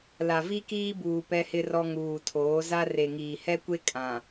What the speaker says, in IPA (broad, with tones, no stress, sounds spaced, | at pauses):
l a˨ v i˦ k iː˦ b uː˨ p ɛ˦ h ɪ˦ r ɔ˦ ŋ uː˨ tʰ oː˨˦ z a˦ r e˨ ŋ iː˨ h ɛ˦ kʷ e˦ kʼ ã˨